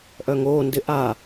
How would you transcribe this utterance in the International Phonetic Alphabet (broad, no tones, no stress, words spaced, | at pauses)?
ʔœŋoːndɪ ʔa